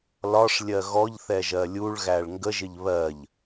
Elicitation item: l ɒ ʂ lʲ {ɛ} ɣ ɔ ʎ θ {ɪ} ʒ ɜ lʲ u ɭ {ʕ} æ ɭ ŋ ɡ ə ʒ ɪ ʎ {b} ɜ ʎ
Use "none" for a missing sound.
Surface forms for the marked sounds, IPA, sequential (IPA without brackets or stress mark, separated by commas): ɜ, ɛ, ɣ, β